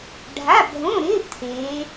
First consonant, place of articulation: retroflex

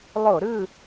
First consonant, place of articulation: alveolar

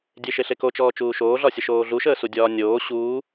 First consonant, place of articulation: alveolar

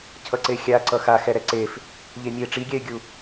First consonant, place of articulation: palatal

